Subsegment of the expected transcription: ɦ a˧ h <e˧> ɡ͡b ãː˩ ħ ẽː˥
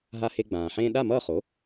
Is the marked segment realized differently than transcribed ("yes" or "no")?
no